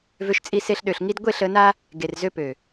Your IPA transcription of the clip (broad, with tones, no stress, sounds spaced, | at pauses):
v ø˧ ʃ t͡sʼ i˧ s e˧ ɬ ɗ ø˨ ɬ ŋ i˧ d ɡʷ e˦˨ ɬ ə˨˦ n a˦ | ɡ e˨ r z ø˧ p ø˨